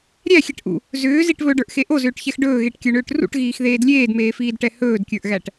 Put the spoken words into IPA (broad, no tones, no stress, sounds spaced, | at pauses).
ɾʲ æ xʲ ɛ ʈ ʔ ṵ | z ʏː z i ʈ β ɵ ɖ ə˞ ʔ x e ʔ o z ʏː ʈ ç ɛ x ɖ ɵː ɣ e ʈ kʲ ə˞ ɳ ʏː ʈ r ṵ ʈ ɣ iː x ð eː d lʲ eː d m eː f iː d ʈ ɛ h ɵː d kʲ ə˞ ʔ ɣ æ ʈ